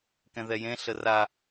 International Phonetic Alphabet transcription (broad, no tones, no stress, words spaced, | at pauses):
kɛ̃ðɛjẽ ɬəra